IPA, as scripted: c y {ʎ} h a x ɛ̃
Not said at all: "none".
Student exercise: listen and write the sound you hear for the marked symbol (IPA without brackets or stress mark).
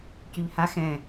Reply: ʎ